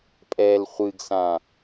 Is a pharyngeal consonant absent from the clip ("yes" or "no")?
yes